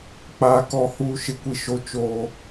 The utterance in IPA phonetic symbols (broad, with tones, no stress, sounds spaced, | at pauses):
k͡p aː˨ k ɔ˦˨ h uː˦ ʃ ɪ˨ kʷ i˨ ʃ o˦ t͡ʃ oː˦